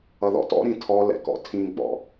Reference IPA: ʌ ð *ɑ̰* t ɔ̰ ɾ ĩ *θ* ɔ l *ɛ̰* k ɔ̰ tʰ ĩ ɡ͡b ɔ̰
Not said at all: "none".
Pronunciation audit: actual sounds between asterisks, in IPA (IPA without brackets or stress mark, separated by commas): ɔ̰, tʰ, ɛ̰